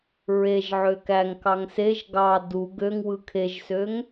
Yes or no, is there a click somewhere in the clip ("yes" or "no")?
no